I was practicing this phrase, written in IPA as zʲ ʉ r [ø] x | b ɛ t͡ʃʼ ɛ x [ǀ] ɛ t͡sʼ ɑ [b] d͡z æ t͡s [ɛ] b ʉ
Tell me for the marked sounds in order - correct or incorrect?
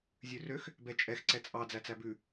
correct, correct, incorrect, incorrect

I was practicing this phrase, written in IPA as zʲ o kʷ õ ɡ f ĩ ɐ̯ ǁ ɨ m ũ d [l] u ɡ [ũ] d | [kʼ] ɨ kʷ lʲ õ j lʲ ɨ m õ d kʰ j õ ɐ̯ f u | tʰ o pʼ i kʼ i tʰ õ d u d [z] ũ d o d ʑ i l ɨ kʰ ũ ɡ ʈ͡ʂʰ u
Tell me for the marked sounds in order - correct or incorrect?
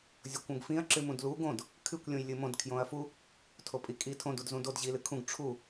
correct, incorrect, incorrect, correct

